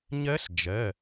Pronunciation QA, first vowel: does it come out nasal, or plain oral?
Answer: oral